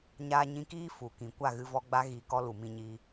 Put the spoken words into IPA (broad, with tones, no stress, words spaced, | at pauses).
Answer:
ɲaː˧ɲĩ˧kiː˦ fu˨kĩ˨ kʷa˦˨ɣɨ˧vɔ˧ɡ͡ba˦ ɣi˧ kɔ˦lu˨mĩ˧ɲiː˧